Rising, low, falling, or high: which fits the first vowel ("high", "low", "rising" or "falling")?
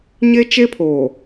high